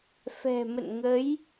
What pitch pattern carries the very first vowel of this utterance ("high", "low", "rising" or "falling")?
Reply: low